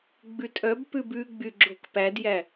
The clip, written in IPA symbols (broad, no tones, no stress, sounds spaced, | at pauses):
ɡ͡b ʉ tʼ œ b p ʉ b ʉ ɡ͡b y ɡ͡ǁ o k p æ d j æ